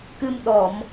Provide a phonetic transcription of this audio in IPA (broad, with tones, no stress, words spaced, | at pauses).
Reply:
kɨ˧m ɗɔ˧˩˨m